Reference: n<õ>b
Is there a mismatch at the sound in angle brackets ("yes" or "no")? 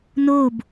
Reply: yes